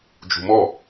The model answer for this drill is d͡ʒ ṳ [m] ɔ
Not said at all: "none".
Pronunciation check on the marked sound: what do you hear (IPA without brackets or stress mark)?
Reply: m